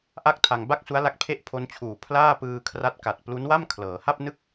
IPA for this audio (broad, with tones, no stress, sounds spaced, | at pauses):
ʔ a˥˩ k̚ tʰ a˧ ŋ b a˥˩ k̚ s u˦˥ a̯ l a˦˥ k̚ pʰ e˥˩ ʔ pʰ o˦˥ n t͡ɕʰ uː˨˩ pʰ l aː˥˩ p ɯː˧ kʰ r a˦˥ t̚ k a˨˩ t̚ p l u˦˥ n w a˥˩ m kʰ l ɤː˩˦ h a˥˩ p̚ n ɯ˥˩ k̚